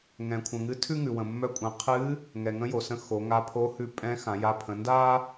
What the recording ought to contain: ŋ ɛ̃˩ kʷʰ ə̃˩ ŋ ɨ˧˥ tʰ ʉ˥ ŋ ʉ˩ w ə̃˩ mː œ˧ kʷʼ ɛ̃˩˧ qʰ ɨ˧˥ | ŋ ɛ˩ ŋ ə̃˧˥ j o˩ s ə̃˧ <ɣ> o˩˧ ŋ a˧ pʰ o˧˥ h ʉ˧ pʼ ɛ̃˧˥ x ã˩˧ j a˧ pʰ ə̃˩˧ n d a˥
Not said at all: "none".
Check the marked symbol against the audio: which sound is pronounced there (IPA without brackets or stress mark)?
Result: x